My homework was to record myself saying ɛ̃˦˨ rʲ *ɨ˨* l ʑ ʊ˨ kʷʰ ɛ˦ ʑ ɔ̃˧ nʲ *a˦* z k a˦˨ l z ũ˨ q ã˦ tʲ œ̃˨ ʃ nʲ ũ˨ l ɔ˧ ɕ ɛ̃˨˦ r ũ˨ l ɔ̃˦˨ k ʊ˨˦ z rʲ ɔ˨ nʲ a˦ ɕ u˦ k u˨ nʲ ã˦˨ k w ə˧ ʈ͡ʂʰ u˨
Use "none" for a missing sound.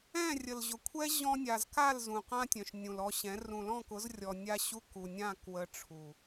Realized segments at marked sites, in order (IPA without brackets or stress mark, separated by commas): ə˨, a˨